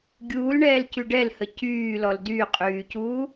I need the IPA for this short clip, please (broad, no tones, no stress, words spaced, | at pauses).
ɡʲuːlɳɛːlcy ɖɛlhə cyːlɔl dyqʼyːcuː